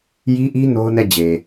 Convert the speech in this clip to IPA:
j i˦ ʔ i˦ n o˦ ʊ̯ n ɛ˦˨ d͡ʑ e˨

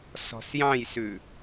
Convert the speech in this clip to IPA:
s ɔ̤ s j ɑ̃ j s ʉ

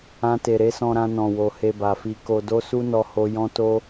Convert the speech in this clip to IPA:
ã˧ t e˨ ɾ e˨˦ s ɔ̃˧ ɾ ã˧ n ɔ̃˨ w o˨ h e˧ b a˨ f i˧ k o˧ d o˦ s u˦ n ɔ˦ h o˦ j ɔ̃˦ t o˦

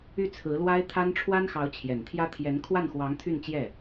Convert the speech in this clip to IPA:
y˥˩ t͡sʰ ɹ̩˧˥ l w a˥ ɪ̯ t̪ʰ a˥ n ʈ͡ʂʰ w a˥ n x ɑ˧˥ ʊ̯ t͡ɕʰ j ɛ˨˩ n t̪ʰ j ä˥ t̪ʰ j ɛ˧˥ n kʰ w a˥˩ n x w ɑ˧˥ ŋ t̪ʰ y˥˧ n t͡ɕ j ɛ˥˩

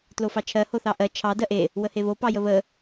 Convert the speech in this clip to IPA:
t l o f ɑ t͡ʃʰ ɜ h o θ ɑ ʔ ɜ t͡ʃʰ ɑ d ɜ ʔ e | w ə h e β o p ɑ j ə β ə

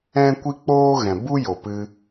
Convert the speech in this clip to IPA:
ɛ̃˦ kʷ i˦ k͡p oː˦ ɣ ɛ̃˨ b u˦ j o˨ p ɨ˧

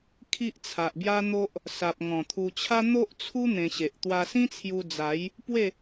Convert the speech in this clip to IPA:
kʰ i˦ ʔ t͡sʰ a˨ ʔ b j a˦ n̪ o˦ ʔ | s a˨ p̚ ŋ ɔ̃˨˩ t̪ʰ u˧ t͡ɕʰ a˦ n̪ o˦ ʔ t͡sʰ u˦ n̪ ẽ˧ ɕ e˨ ʔ t̪ w a˧ s ĩ˦ t͡sʰ j u˧ d͡z a˨˦ j | p w e˥˧

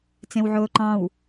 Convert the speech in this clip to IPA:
t͡s ẽ w ʕ oː ǃ ɑ̃ w

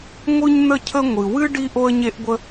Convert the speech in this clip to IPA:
ŋʷ ɯ˥ ɲ n̪ ə˥ cʰ ə˥ ŋʷ ɨ˩ w ɨ˥ ɖ i˥ ʔ o˥ ə̯ ɲ e˥ ʔ ɡʷ ə˥

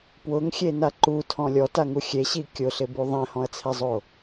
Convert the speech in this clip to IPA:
p w ʊ ŋ xʲ e n a ǃ u tʰ ɔ̃ lʲ ɔ t a ŋ u xʲ e ɕ i kʲ ʊ ɬ ɪ b u ðˤ ɛ̃ h ɔ̃ ɐ̯ t͡sʰ ɛ zˤ o

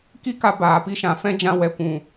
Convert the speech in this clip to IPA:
k i˦ k a˧ b aː˨ p i˧ ʃ ã˨ f ɛ̃˦ d͡ʒ ã˧ w ɛ˨ kʷ ũ˨

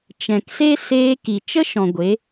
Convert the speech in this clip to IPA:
t͡ʃ ɛ̃˨ k s e˦ s eː˧ k i˨ t͡ʃ ə˦ ʃ ɔ̃˨ ɡʷ e˨˦

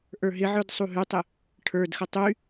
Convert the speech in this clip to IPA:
ʔ ə˞ ɦ ɪ ʕ ə˞ d sˤ u ɦ y tˤ ɪ | ʈʰ ə˞ d x ə tˤ y

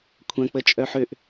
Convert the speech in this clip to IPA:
kʷʰ ɐ̃ k͡p ə t͡ʃʼ œ ħ ø ʔ

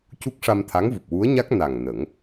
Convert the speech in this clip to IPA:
c u˦˥ k̚ ʂ a˧ m t̪ʰ a˧˥ ŋ v u˨˩ p̚ w u˧˥ ə̯ ɲ a˦˥ k̚ n a˨˩ ŋ n ə˨˩˦ ŋ

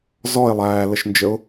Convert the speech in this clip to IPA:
z ɔ ɪ̯ lˠ æː l ə ʃ n d͡ʒ ə ʊ̯

